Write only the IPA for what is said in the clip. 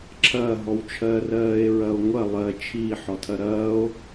ǁʰ ɐː ɦ ɔ w t͡ʃʰ ɜː r ɜː e̯ ɹ ɐ o̯ ŋʷ ɐ lˠ ɜ t͡ʃʰ iː ħ ɔ tʰ ɐ ɾ ɐː o̯

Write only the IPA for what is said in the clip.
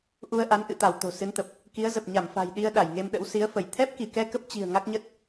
ʔ u˧ ə̯ ʔ a˨˦ n ʔ ɨ̰˧˨ t̪ a˧˩ w t̪ o̤˨˩ s ɨ˨˦ n t̪ ə˨˩ p̚ | k i˨˦ ə̯ z ə˨˩ p̚ ɲ a˧˩ m f a̤˨˩ j ɗ i˧ ə̯ ɗ a˧˩ j ŋ e˧ m ɗ ə̰˧˥ w s i˨˦ ə̯ f ə˧˩ j t̪ʰ ɛ˦˥ p̚ k i˧˩ k ɛ˧ k ə˦˥ p̚ t͡ɕ i̤˨˩ ə̯ ŋ a˦˥ k̚ ɲ ə˦˥ t̚

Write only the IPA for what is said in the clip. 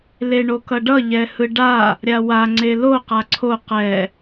l e ɳ o k ʌ ɖ ʌ ʎ ɛ h ɯ ɖ a | ɾʲ a w a ŋ͡ǀ e l o q a ǀʰ o q ɛ

